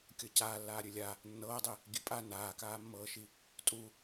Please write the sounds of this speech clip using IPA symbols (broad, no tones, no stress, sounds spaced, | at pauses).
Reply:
kʲ ɤ c aː lː aː ɾʲ ʉ lʲ a | nː ɤː dˤ i | ɡʲ ʉ pʼ a n aː k aː mː ɤː ʃ i | tʼ u